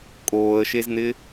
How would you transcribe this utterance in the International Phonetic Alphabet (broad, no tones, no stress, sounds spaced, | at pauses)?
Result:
kʼ oː ə̯ ʃ e z n̪ ɪ